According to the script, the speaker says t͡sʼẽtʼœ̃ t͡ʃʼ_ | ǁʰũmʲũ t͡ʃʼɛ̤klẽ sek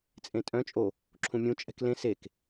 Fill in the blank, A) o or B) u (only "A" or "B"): A